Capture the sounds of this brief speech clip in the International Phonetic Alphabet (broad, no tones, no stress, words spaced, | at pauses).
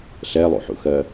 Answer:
ɬɛlˠṵħṵxɜ